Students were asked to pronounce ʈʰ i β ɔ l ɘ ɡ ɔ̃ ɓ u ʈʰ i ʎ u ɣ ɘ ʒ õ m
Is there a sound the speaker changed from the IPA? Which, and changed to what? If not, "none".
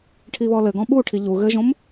none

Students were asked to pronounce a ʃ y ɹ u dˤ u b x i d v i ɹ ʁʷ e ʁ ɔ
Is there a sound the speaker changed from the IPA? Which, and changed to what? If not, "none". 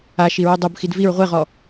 y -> i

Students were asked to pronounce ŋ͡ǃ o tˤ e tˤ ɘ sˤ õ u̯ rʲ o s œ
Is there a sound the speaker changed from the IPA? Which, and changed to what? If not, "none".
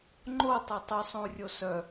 none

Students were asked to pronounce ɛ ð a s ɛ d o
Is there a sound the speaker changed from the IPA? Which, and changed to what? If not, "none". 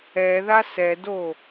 none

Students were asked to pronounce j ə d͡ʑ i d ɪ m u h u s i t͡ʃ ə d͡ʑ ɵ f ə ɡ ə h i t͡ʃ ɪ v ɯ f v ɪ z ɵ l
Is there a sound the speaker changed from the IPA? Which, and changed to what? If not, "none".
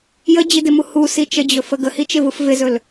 none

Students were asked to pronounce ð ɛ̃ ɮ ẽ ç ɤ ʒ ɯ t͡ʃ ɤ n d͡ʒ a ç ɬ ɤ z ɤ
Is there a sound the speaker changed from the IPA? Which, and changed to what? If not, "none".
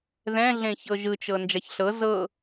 none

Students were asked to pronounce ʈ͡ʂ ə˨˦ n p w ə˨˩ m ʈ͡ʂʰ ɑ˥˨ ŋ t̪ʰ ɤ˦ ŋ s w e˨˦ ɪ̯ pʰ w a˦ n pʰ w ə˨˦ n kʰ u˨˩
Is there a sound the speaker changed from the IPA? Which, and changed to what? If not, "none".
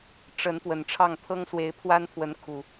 m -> n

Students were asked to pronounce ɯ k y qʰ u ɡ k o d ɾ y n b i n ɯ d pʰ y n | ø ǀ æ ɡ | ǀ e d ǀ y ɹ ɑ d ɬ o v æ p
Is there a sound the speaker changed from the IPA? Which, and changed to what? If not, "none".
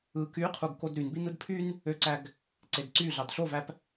ɹ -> ɮ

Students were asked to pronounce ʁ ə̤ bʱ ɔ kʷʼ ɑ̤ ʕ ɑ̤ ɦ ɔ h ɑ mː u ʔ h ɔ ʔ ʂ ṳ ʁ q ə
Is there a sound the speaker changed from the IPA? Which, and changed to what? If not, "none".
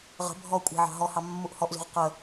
ʂ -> z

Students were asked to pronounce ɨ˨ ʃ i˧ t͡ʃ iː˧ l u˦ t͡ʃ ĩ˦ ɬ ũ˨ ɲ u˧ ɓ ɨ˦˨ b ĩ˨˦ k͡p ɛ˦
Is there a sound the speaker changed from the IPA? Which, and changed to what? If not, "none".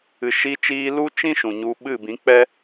ɬ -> ʃ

